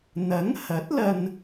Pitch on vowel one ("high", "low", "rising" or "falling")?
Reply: rising